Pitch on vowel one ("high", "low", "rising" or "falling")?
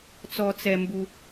high